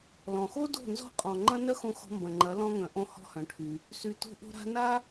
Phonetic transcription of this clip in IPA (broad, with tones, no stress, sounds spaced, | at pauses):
l ɔ̃˨ x o˦ d o̤˦˨ n z ɔ̤˦ qʼ ɔ̃˨ ŋ͡ǃ ɐ̃˦ n œ˦ x õ˧ x ɔ̤˧ m b ɐ̃˨ ŋ͡ǃ ɐ˨˦ l ɔ̃˧ ŋ œ̃˨ ʔ õ˧ h ɔ̤˦ h œ̃˨˦ ʈʰ y˧ | s y˨ t o̤˧ ʔ o̤˧ ɾ a̤˧ n a˦